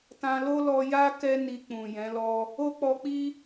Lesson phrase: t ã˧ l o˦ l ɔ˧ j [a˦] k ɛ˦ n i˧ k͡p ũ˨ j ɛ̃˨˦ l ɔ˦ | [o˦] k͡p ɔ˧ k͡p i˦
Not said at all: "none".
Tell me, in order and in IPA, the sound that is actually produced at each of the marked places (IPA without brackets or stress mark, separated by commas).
a˦, o˦